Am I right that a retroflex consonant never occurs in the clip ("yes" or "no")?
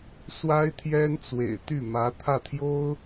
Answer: yes